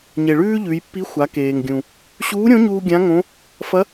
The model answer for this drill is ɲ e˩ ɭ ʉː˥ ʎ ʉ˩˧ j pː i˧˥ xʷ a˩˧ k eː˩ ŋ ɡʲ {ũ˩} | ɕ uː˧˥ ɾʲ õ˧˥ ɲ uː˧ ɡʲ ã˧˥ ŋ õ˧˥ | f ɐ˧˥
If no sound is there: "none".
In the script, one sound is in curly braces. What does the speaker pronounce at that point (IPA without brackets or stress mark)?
ũ˩